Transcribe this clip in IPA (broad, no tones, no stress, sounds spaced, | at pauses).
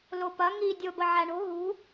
l o p ɐ ŋ i dʲ o b ə ʕ æ ɳ o̤ ɦ ṳ